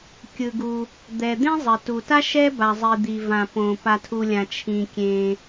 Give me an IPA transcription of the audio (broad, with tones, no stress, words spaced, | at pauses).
kʲɯ˩ɡu˩ | d̪ɛ˩ d̪ẽ˥zˤe˩tu˩ta˥ ʃɛ˥ ba˩zˤi˩ d̪i˩vã˩põ˩ pa˩tʰu˩ lʲã˩ t͡ʃʰĩ˩kʲẽ˩